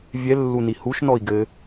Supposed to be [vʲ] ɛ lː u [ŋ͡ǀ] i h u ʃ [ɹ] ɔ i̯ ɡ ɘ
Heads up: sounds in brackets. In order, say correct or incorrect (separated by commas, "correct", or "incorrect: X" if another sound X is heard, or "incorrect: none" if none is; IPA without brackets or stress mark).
correct, incorrect: n, incorrect: n